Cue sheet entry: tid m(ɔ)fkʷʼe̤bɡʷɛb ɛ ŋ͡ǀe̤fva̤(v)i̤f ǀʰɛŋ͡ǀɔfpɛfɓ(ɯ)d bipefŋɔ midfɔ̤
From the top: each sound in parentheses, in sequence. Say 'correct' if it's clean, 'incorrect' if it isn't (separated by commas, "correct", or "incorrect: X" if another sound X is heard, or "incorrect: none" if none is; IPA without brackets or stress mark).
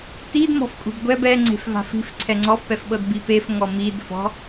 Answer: incorrect: ɔ̤, incorrect: f, incorrect: ɤ